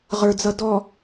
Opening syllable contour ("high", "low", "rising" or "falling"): low